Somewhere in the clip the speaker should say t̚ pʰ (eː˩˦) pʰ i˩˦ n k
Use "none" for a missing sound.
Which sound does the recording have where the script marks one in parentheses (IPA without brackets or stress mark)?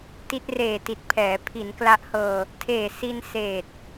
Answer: ɛː˩˦